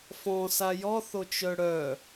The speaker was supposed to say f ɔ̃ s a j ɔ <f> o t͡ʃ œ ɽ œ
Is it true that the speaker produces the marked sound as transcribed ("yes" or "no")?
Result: no